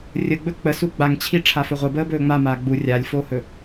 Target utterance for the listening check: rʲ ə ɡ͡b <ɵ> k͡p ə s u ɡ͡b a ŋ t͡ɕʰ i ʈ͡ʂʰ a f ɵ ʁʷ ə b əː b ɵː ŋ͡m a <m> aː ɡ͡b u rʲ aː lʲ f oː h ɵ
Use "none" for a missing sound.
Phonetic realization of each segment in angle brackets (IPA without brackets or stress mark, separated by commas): ɵ, m